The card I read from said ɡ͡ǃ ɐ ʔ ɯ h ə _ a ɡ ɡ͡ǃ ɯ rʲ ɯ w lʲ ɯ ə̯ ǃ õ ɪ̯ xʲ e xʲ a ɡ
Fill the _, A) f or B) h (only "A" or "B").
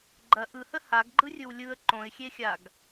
B